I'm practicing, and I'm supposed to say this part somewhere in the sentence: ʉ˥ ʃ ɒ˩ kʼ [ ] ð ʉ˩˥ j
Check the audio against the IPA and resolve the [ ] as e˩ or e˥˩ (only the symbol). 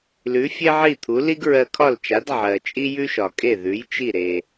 e˥˩